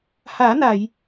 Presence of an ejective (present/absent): absent